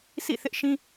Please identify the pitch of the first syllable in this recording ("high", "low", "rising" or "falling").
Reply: falling